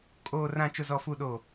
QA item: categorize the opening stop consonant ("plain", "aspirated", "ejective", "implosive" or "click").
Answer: ejective